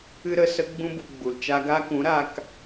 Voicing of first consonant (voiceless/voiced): voiced